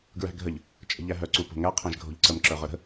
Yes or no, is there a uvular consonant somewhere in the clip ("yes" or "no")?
yes